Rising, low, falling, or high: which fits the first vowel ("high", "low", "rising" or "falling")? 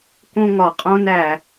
high